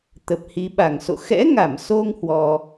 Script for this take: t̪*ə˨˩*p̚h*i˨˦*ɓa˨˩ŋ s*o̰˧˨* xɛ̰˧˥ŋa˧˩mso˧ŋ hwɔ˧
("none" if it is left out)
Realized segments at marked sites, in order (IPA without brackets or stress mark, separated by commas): ə˨˩, i˨˦, o̰˧˨